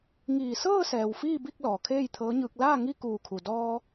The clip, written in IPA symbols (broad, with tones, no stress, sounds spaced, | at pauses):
ŋ iː˧˩ s ɤː˥˨ s ɛː˩ w f iː˥˨ b i˥˨ k̚ l ɔː˩ kʰ eː˥˨ j t̪ʰ ɤː˧˥ ɲ ɯː˧ k̚ l aː˥˨ ŋ i˥˨ k uː˧˩ kʰ u˩ d ɔː˧